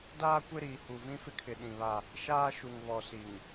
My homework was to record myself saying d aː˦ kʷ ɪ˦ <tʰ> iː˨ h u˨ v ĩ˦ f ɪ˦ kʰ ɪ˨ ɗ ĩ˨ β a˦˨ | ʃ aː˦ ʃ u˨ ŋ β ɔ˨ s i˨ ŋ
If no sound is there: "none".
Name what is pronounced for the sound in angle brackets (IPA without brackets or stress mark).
ɾ